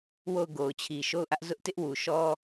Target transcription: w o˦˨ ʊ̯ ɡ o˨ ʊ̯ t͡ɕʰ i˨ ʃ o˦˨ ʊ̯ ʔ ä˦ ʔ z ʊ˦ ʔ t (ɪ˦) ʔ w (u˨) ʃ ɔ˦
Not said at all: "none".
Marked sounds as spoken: ɪ˦, u˨

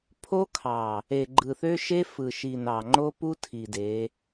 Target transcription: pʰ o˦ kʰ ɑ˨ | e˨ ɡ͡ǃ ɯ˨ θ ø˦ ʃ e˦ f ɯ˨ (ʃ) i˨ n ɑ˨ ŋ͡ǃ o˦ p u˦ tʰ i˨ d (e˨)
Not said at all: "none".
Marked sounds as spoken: ʃ, e˨˦

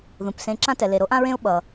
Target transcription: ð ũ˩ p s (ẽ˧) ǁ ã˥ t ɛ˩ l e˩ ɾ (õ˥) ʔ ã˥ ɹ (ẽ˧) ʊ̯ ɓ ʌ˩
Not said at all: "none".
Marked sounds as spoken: ẽ˧, o˥, ẽ˥

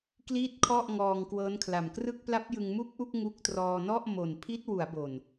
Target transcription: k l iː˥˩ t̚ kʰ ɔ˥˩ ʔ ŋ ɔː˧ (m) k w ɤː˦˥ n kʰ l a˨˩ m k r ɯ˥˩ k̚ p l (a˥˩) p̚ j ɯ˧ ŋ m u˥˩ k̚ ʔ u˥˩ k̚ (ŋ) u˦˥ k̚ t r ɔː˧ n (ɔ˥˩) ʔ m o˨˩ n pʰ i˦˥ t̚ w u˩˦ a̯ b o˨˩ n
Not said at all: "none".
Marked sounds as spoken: ŋ, a˦˥, ŋ, ɔ˥˩

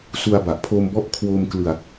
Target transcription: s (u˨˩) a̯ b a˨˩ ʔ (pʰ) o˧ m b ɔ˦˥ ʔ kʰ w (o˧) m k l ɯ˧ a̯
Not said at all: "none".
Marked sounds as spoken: u˧, pʰ, o˧

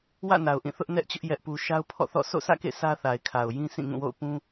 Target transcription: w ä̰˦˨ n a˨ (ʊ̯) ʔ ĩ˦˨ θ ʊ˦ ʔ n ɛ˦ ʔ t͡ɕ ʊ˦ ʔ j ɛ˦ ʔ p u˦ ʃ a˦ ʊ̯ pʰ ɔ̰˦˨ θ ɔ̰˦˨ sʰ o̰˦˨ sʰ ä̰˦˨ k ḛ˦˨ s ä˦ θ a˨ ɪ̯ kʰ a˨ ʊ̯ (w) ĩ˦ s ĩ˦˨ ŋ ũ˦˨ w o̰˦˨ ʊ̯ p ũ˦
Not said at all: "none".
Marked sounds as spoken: ʊ̯, j

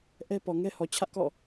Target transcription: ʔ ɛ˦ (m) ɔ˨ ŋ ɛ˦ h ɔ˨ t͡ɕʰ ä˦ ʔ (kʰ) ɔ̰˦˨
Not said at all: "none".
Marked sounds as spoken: p, k

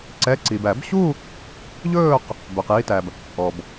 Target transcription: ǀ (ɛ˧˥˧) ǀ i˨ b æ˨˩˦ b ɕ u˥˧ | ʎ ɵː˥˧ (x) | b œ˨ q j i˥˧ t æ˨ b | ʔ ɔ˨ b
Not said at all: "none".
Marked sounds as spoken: ɛ˧˥˧, q

